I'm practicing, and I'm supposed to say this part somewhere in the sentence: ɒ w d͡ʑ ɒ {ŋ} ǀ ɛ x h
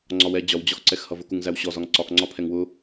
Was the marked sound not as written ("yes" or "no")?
yes